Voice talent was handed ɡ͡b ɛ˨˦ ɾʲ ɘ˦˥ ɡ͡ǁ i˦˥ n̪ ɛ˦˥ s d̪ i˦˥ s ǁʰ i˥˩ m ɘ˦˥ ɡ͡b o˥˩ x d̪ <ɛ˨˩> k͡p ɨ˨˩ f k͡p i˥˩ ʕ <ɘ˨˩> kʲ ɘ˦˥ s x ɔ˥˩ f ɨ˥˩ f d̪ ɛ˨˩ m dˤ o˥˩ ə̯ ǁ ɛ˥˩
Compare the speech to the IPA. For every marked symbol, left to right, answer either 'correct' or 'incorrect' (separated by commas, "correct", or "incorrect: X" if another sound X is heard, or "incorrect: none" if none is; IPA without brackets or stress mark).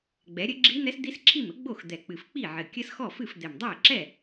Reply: correct, correct